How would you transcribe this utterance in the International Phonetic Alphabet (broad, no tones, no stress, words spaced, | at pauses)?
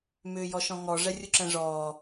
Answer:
mʏːjɔʃɔ̃ŋɔ ʐɛrʲuǁɛ̃ʐɔː